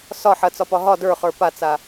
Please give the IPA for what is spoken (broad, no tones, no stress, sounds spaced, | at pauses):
s ɒ ħ ɐ t͡s ɒ p ɒ ɦ ɒ d ə˞ χ ə˞ p a t͡s a